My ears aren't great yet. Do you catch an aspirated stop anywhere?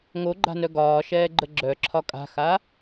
yes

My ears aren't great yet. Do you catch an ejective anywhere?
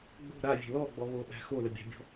no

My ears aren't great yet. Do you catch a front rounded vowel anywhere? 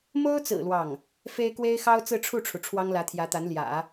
no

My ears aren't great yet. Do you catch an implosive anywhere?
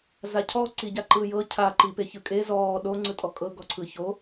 yes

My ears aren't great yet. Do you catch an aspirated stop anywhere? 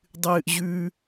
no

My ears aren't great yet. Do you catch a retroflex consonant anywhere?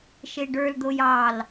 yes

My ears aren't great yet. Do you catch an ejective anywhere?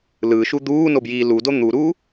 no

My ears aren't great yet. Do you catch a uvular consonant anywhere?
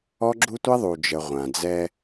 yes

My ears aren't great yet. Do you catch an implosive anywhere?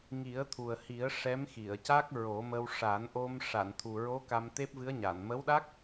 yes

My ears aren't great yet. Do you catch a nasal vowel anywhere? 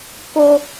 no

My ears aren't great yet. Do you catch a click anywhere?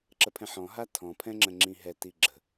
yes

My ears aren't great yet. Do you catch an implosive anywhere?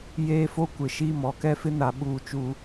yes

